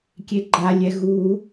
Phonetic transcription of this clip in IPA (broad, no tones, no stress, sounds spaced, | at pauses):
kʲ e ɡ͡ǃ a lʲ ɛ ɣ u